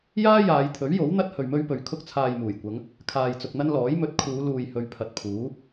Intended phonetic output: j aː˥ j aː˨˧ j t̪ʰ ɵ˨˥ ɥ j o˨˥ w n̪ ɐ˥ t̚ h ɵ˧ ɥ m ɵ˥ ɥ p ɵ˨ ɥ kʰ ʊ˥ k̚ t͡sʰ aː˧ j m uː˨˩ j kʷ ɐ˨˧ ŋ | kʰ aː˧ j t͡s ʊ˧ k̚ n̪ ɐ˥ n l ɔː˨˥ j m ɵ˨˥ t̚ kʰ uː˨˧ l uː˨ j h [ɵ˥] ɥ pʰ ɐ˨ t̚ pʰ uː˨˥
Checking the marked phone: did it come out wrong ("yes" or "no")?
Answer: yes